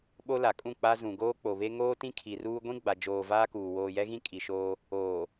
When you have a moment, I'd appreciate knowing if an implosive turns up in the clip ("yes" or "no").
yes